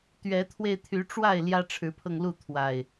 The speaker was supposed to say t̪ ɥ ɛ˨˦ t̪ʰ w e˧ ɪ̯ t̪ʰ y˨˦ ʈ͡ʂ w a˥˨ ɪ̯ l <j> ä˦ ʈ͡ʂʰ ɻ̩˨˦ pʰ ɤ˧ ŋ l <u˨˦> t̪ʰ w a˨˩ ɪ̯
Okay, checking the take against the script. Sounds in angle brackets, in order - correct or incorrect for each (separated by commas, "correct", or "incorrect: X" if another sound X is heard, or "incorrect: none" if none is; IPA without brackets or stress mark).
correct, incorrect: u˥˨